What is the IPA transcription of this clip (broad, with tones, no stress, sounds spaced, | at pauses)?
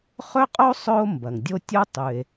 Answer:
χ ɵ˥ qʼ o˥ sˤ ɵ˥ o̯ m b ɐ˩ ŋ dʲ o˥ tʲ o˥ tˤ ʉ˩ e̯